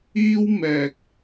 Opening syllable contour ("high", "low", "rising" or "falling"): high